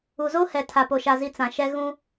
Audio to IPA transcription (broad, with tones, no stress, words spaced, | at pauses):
u˨zo˦hɛ˨ tʰa˨po˨ʃa˨zi˨ t͡sã˨ʃɛ˦ ɣũ˦